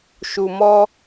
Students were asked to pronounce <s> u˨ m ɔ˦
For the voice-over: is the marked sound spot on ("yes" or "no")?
no